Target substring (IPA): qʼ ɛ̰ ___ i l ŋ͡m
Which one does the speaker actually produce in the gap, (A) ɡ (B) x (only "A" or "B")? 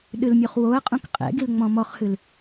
A